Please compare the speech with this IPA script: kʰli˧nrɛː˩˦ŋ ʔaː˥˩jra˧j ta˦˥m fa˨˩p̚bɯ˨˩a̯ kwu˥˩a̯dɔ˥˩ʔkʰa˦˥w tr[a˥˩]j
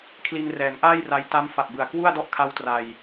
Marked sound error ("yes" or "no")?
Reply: yes